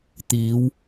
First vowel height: high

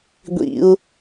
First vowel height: high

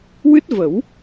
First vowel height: high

